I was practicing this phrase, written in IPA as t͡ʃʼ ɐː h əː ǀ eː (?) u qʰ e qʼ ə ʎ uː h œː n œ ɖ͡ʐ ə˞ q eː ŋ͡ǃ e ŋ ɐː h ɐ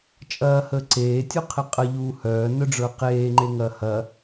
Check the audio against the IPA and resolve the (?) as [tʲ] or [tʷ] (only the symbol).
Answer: tʲ